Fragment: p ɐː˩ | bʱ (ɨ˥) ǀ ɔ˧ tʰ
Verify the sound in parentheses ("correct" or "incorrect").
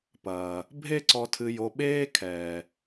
incorrect